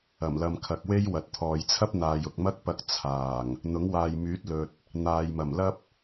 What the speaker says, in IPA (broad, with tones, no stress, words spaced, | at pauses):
ɐ˨˩mlɐ˨mkʰɐ˨k̚we˥j wɐ˨t̚t̪ʰɔː˨jt͡sʰɐ˥p̚ n̪aː˨jʊ˨k̚mɐ˥k̚pɐ˧k̚ t͡sʰaː˨˩ŋ | n̪ʊ˨˥ŋwaː˨jmyː˨˥t̚ lɵ˨t̚ | n̪aː˨jmɐ˨˩mlɐ˥p̚